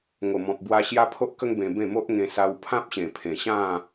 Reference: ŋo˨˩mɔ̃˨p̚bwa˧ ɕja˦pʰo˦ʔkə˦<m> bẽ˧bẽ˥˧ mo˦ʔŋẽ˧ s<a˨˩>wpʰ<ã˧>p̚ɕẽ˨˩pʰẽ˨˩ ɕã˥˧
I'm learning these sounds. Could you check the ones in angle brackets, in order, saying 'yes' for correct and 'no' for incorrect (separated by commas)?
no, no, no